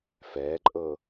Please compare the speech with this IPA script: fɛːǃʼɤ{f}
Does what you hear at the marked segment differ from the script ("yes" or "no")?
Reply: yes